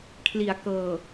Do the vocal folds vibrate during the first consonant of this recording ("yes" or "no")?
no